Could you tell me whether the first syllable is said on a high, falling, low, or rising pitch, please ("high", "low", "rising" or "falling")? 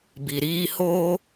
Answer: low